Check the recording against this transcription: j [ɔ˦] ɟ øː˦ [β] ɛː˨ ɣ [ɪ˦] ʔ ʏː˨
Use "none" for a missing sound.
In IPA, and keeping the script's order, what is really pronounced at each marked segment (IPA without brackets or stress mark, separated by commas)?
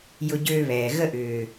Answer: ʊ˦, β, ə˦